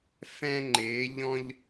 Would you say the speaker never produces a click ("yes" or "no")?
no